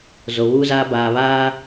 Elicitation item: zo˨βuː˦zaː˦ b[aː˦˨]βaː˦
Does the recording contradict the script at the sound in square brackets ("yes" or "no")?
yes